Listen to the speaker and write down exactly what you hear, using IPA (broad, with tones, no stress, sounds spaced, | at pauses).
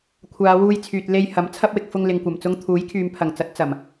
kʷʰ aː˨˧ w uː˧ j t͡sʰ yː˨ t̚ l e˧ j h ɐ˨˥ m t͡sʰ ɐ˥ p̚ w ɪ˨ k̚ f ʊ˧ ŋ l ɪ˨ ŋ kʷ ɐ˨˩ m t͡s ʊ˥ ŋ t̪ʰ uː˨˥ j kʰ yː˨ m pʰ ɐ˨˩ ŋ t͡s ɐ˨˥ t̚ t͡s ɐ˨˩ m